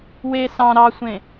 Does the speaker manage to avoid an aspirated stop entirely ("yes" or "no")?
yes